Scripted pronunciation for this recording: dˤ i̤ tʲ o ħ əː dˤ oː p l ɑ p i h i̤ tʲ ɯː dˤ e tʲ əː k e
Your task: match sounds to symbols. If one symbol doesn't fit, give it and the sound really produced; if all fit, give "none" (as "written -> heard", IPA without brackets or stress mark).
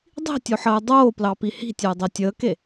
ɯː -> əː